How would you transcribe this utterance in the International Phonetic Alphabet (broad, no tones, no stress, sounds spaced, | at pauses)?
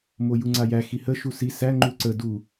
m o j u ŋ͡ǀ a j æ x i h ə ʃ u s i s æ ŋ͡ǃ u ǀ ə d u